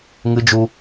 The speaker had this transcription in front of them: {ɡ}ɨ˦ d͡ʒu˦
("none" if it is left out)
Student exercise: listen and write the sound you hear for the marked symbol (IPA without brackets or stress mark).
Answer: ŋ